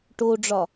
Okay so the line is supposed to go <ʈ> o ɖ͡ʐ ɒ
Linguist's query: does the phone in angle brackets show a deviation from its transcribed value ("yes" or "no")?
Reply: no